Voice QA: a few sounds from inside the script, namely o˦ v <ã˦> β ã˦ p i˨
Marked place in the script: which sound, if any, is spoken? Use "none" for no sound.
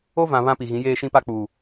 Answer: ã˨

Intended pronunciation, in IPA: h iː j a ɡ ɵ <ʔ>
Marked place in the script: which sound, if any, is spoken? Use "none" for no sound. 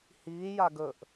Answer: ʔ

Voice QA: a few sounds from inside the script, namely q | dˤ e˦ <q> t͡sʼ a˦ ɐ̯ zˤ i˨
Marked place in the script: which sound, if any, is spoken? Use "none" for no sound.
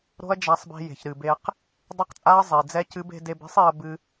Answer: q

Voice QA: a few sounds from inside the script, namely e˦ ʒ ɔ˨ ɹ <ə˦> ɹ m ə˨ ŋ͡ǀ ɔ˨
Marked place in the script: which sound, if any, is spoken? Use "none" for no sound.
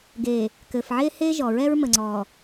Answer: ɛ˦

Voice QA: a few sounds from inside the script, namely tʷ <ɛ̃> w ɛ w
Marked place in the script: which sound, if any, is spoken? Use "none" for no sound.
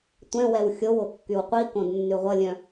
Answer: ɛ̃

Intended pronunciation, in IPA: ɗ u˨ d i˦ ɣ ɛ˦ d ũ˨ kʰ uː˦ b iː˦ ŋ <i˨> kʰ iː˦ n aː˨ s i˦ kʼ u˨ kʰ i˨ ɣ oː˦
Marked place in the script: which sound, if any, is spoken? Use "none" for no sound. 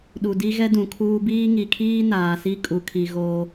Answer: i˨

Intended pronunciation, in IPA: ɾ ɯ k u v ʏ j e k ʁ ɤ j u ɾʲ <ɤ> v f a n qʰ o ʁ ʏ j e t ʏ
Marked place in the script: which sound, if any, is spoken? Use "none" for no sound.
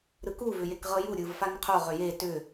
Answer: ɯ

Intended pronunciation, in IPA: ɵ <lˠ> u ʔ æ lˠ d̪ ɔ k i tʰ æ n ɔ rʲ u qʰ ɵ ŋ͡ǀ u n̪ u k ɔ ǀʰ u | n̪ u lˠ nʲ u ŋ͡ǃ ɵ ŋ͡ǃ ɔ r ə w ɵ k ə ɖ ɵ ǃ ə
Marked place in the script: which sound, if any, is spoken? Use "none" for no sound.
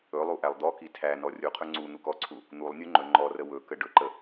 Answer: lˠ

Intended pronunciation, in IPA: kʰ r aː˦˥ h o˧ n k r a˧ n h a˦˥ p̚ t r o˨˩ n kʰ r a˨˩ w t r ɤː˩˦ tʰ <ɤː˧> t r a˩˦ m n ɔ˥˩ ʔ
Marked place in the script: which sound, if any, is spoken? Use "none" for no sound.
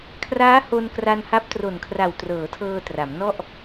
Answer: ɤː˧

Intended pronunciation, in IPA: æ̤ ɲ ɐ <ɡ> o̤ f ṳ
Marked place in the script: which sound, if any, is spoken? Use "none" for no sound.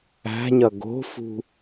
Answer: ɡ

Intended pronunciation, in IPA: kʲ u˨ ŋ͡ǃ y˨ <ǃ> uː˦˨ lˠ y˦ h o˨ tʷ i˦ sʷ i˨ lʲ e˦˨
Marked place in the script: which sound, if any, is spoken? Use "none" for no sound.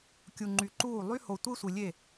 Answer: ǃ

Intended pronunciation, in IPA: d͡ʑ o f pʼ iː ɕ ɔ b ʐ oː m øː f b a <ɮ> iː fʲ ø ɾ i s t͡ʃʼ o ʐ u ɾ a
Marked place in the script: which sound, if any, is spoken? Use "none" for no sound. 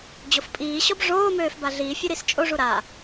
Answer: ɮ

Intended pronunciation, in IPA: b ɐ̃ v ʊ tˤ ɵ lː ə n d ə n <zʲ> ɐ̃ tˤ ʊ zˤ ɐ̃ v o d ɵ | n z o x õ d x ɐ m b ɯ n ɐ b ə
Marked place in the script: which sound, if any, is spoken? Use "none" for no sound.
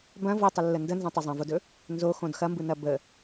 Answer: z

